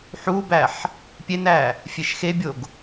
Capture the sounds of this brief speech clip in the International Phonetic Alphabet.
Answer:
ħ u b æ ħ | pʲ e n æ | fʲ e ʃ x e bʲ o ɡ

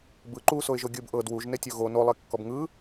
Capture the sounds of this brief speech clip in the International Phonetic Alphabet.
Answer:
b ɯ ǃ u s o ɪ̯ ʒ o ɡʲ ɯ b ʔ ɤ d w u ʒ n e tʲ o ɣ o n o lˠ e kː ɔ b ŋ ɯ

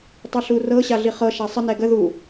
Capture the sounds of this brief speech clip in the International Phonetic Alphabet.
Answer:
tˤ i ɬ u r ɤ ɕ a ɮ i χ ɤ ʃ a sˤ ə n ɛ ɡ ə ð u

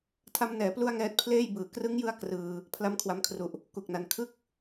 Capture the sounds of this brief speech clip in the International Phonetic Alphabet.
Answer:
tʰ a˦˥ m n ɛː˩˦ p l u˥˩ a̯ ŋ ɛː˦˥ t̚ pʰ l eː˥˩ j b ɯː˨˩ k r ɯ˦˥ ŋ j ɯ˦˥ a̯ k r ɯː˧ | pʰ l a˦˥ m kʰ w a˧ m kʰ r u˨˩ ʔ | k u˨˩ k̚ n a˨˩ n kʰ ɯ˥˩ k̚

